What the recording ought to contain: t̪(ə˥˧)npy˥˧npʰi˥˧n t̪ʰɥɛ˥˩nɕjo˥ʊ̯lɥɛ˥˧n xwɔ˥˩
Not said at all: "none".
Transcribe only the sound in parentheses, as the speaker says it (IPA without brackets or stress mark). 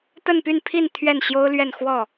ə˥˧